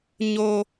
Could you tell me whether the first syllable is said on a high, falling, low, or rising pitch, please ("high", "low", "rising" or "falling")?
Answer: low